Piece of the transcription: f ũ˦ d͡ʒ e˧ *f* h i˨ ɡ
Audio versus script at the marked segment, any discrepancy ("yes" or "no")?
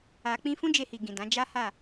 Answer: yes